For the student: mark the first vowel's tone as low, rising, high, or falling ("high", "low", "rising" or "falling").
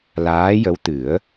rising